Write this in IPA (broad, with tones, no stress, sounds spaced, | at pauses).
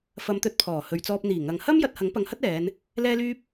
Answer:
f ɐ˨˧ m t̪ ɵ˨˥ t̚ pʰ ɔː˨˩ h ɵ˨ ɥ t͡s ɔː˧ p̚ n̪ iː˨˩ ŋ ɐ˨ ŋ h ɐ˥ m j ɐ˨˥ t̚ h ɐ˨˥ ŋ p ɐ˨˧ ŋ h ɐ˥ t̚ ɛː˨˧ n | l ɛː˥ l yː˥ p̚